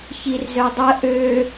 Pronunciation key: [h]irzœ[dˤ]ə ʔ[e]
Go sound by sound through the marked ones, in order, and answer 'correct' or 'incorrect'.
incorrect, correct, incorrect

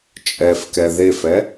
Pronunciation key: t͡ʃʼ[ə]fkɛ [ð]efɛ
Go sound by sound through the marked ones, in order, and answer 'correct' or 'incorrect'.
incorrect, correct

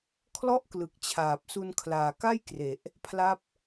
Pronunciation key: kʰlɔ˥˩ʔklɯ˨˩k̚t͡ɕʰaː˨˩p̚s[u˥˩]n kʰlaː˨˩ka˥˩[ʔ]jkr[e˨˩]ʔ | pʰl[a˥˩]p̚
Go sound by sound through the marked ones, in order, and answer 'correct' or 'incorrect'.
incorrect, incorrect, correct, correct

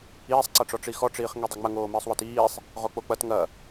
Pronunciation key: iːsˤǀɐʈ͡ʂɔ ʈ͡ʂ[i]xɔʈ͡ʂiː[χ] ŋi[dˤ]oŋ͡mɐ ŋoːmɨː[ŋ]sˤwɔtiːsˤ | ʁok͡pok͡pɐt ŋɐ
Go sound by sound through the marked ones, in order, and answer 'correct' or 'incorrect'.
correct, correct, correct, incorrect

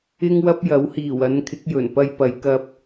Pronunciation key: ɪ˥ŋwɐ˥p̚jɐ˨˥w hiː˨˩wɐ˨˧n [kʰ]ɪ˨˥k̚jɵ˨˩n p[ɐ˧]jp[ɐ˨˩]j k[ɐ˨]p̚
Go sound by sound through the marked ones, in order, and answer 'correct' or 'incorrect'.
correct, correct, incorrect, incorrect

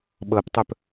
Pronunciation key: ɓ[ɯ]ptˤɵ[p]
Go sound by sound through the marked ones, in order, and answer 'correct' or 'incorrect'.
incorrect, correct

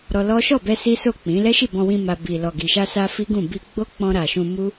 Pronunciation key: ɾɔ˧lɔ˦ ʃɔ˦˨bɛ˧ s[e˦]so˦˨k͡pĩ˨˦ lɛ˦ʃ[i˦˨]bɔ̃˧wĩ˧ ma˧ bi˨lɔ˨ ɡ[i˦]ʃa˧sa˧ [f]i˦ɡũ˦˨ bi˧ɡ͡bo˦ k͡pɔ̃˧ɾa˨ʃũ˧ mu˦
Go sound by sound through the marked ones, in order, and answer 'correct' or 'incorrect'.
incorrect, correct, incorrect, correct

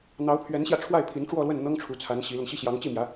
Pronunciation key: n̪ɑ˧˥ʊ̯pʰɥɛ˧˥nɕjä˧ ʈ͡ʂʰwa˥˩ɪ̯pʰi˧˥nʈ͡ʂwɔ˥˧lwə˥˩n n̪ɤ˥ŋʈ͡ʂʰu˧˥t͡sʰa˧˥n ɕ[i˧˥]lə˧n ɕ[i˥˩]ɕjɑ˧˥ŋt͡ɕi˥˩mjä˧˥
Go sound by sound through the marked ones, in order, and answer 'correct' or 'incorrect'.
correct, correct

